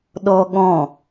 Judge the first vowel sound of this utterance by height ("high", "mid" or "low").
mid